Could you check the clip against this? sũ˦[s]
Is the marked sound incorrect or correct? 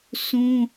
incorrect